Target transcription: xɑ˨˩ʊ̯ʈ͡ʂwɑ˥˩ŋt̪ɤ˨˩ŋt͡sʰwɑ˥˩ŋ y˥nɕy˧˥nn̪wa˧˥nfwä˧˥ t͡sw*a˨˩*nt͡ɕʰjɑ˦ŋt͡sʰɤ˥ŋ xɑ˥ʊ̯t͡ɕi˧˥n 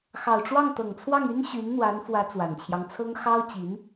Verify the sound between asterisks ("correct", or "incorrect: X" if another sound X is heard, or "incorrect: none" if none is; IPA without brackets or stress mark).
correct